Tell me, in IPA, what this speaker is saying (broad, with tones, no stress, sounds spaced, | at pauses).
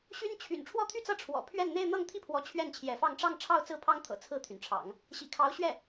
ɕ y˥ n t͡ɕʰ y̰˨˩ n ʈ͡ʂʰ w ɔ˥˧ t̪ʰ y˥˧ t͡s ɤ˥˩ ʈ͡ʂʰ w ɔ̰˨˩ pʰ ɥ ɛ˥˧ n n̪ e˥˧ ɪ̯ n̪ ɤ˥˧ ŋ t̪ʰ i˥˩ pʰ w ɔ˧˥ t͡ɕʰ ɥ ɛ˥˩ n t͡ɕʰ j ɛ˧˥ f ɑ˥˧ ŋ ʈ͡ʂ ɑ˥˧ ŋ ʈ͡ʂʰ ɑ˥˧ ʊ̯ t͡s ɹ̩˥˩ pʰ ɑ˥ ŋ t̪ʰ ɤ̰˨˩ t͡sʰ ɹ̩˥˩ t̪ʰ y˩ n ʈ͡ʂʰ ɑ̰˨˩˦ ŋ | ɕ ḭ˨˩ kʰ ɑ˧˥ ʊ̯ ɕ ɥ ɛ˥˩